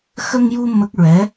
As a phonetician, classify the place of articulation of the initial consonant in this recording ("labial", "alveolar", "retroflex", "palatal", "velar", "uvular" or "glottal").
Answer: velar